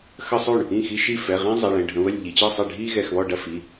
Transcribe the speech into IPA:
x ə˦ sˤ o˥˩ ɳ | ĩ˥˩ x i˦ ʃ i˥˩ f ɛ˩˧˩ ʁ ɛ̃˦ zˤ e˩˧˩ ɭ ɛ̃˩˧˩ ɖʱ ə̃˩˧˩ β ə˥˩ lʲ ʎ i˩˧˩ t͡ɕ ɯ˥˩ sˤ ɛ˥˩ ɖʱ i˦ ɣ ɛ˩˧˩ x β ɔ˥˩ ɖ ɐ˥˩ f i˩˧˩

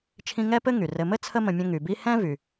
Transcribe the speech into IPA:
t͡ʃʰ ĩ˦ ŋ ɛ˥ p ɘ˥ ŋ y˩ r ɘ˨ m ɘ˥ t͡sʰ ə˦ m ə̃˨ mʲ ə̃˦ ŋ y˨ b i˥ h ɛ̃˥ v y˩

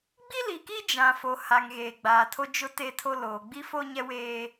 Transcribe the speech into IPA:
ɡ͡b i˦ l i˨ k i˦ d͡ʒ ã˨ f o˨ h a˨ ŋ ɣ eː˨ ɡ͡b aː˨ tʰ o˦ d͡ʒ ʊ˦ t e˦ tʰ o˦ l oː˨ ɡ͡b i˦ f o˦ ɲ ɛ˦ w eː˦

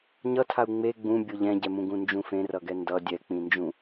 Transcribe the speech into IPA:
ɲ ʌ tʰ a u̯ ŋ͡m e ɡ͡b ũ bʲ o ʎ ɛ̃ ɟ ɛ m ũ ɡ ũ n d͡ʒ ũ f ẽ r ʌ ɡ ɛ n d ʌ dʲ ɛ k͡p ĩ n d͡ʒ ũ

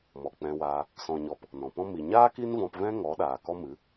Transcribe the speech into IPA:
m ɔ˨ k͡p ɛ̃˧ w aː˧ | s ɔ̃˨ ɲ ɔ˨ p | n ɔ̃˨ p ɔ̃˦ m i˨ ɲ aː˦ k i˦ n v ɔ̃˧ p v ɛ̃˦ ŋ ɔ˨˦ ɗ aː˨ k ɔ˦ m ɨ˨˦

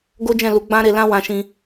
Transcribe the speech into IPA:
ɡ o˦ d͡ʒ ɛ̃˦˨ l u˨˦ ɡ͡b ã˦ ɾ e˧ l ã˦ w ã˧ ʃ ĩ˧

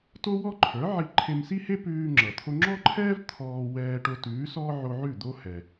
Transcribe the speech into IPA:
t o˥ w ɔ˥ ǃʰ ə˞˩˥ ʕ i˧ ǃʰ e˧ m s i˥ h e˥ p ʉː˧ ŋ͡ǁ ʌ˩ t̪ʰ o˧ ŋ͡ǁ ɔ˥ ǃʰ ɛː˥ v t̪ʰ ɔː˧ w ɛː˧ ʈ o˧ t ʉː˩˥ s ɔː˥ ʕ o˧ ʕ ʉ˥˩ d̪ o˥ h ɛ˩

